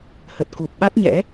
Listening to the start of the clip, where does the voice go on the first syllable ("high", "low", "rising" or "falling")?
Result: low